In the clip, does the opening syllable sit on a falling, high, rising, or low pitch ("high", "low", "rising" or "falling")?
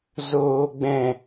low